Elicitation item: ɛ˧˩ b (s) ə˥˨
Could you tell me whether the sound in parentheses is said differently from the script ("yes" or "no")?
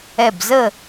yes